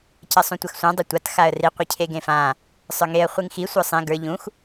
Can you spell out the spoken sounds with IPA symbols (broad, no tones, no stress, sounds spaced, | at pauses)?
c ɐ sˤ ũ tʷ ɐ x sʷ ã dˤ ɐ tʷ a t x a ə̯ r i qʷ e cʰ e ɡ ẽ f ã | sˤ ə˞ ŋ e ə̯ χʷ i ŋ x i sʷ ə˞ sˤ ẽ ɡ ə˞ ʎ ũ x